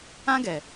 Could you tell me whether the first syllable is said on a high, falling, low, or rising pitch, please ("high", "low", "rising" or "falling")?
high